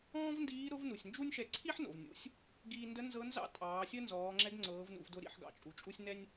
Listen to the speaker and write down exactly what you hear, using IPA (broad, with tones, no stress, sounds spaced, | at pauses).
ɔ̃ː˥ v n d iː˧˥ ɾ ʊ˧˥ v n u˩ sʲ n d͡ʒ u˥ nʲ ʃ ɛ˧ ǀʰ i˥ ħ n o̰˩ v nʲ ṵ˩˧ sʲ | ɡ iː˧ n d ə˧˥ n z ɤ˧˥ n z ɑ̰˥ tʼ ɑː˩˧ sʲ ə˥ n z ɔː˩˧ ŋ͡ǁ ɛ˧˥ ɡ ŋ͡ǀ ɤː˩˧ v n ṵ˩˧ v d ʊ˧ ɾ ḭ˩˧ ħ ɡ ɑ̰˩ t͡ʃʼ u˩ t͡ʃʼ u˧ sʲ n ɛ˥ nʲ